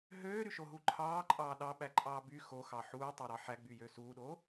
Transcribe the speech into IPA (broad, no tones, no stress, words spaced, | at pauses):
ɦøːɾyʃoɦu ǃʰɑːǃʼɑː ɗɑɓæǃʼɑː by xoxɑ ħuːtˤoɾɑ ħæɡ͡byjø suːɗoː